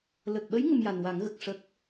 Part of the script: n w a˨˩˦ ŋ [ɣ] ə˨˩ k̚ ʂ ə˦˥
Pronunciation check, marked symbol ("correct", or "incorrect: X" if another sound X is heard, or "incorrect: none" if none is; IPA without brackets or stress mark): correct